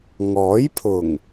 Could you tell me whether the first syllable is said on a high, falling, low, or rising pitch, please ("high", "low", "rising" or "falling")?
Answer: rising